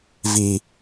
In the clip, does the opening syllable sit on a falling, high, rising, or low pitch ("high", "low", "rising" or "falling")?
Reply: low